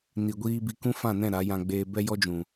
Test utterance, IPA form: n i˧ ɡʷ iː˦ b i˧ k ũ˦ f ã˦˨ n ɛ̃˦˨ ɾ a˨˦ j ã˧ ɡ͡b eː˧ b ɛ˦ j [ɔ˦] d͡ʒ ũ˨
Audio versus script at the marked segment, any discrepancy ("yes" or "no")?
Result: no